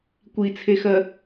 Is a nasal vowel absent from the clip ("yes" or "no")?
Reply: yes